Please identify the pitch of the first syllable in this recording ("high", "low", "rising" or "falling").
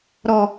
low